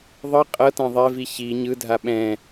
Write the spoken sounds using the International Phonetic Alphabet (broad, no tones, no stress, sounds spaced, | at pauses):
ðˤ ɯ qʼ ɤ t ã ðˤ ɛ v i ç i ɲ ɯ dʱ a ɓ ɛ̃